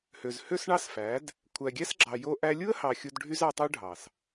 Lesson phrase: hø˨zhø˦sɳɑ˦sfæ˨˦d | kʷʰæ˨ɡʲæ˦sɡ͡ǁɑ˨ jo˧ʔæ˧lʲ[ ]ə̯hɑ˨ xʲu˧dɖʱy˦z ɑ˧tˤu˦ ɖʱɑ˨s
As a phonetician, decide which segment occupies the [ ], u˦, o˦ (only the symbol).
u˦